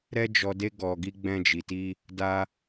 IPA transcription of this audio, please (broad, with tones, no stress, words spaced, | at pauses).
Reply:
ɾɛ˦d͡ʒɔ˧ de˦ ɡɔ˧ɡi˦ ɡ͡bɛ̃˦d͡ʒi˧ti˦ | da˦